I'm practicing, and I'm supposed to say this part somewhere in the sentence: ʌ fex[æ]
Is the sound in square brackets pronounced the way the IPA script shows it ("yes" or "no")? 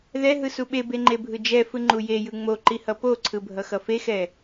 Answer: no